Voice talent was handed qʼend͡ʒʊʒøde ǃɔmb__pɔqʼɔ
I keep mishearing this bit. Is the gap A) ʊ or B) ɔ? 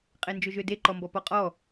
B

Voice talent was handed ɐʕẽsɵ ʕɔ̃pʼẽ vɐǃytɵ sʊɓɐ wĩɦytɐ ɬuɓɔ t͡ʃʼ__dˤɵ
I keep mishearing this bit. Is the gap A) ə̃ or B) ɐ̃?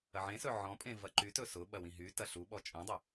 B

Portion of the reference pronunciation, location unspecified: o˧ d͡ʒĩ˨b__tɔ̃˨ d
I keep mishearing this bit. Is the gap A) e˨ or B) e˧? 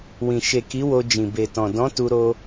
A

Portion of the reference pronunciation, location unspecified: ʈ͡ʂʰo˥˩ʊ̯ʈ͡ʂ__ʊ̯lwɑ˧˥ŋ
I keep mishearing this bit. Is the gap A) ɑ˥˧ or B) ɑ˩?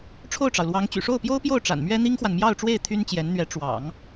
B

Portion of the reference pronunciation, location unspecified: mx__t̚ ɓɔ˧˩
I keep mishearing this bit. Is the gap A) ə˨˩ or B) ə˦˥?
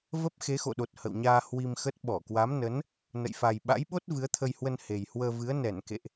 B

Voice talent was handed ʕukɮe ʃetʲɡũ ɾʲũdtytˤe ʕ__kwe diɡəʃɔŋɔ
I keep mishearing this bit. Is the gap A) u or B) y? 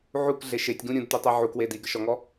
A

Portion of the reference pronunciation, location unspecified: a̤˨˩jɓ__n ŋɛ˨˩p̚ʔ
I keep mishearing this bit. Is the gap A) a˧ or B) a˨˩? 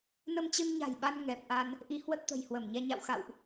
A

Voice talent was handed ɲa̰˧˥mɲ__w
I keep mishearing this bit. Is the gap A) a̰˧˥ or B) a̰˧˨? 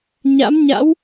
A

